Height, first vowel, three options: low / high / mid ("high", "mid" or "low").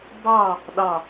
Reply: low